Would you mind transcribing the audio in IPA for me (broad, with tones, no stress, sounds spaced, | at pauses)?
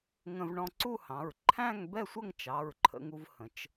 ŋ ə̃˧ v ɳ ɔ̃˧ ǀ u˥˧ h ɑ̃˩˧˩ ɹ ǃʰ æ̃˥˧ ŋ b ɛ˥˧ sʷ ə˥˧ ŋ t͡ʃ ɑ˩˧˩ ɹ ǃʰ ə̰˧ ŋ u˧ v h ə̃˩˧ t͡ʃ